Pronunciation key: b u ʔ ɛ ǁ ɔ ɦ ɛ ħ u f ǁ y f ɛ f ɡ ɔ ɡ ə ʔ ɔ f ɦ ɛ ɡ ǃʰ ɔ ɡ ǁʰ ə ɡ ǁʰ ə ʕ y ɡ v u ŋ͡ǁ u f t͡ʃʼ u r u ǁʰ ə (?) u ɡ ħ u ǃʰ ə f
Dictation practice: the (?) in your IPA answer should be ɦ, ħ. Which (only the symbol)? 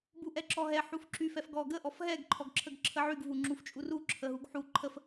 ɦ